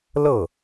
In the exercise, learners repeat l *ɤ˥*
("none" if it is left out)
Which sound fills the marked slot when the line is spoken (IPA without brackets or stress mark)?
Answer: ɤ˥˩